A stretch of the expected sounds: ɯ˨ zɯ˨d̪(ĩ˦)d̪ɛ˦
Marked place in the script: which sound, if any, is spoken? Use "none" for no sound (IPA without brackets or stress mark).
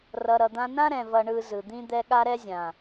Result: ĩ˦